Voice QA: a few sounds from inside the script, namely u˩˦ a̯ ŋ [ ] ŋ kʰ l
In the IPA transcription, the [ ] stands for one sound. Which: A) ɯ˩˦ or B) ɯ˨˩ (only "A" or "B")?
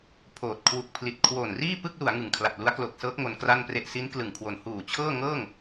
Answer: B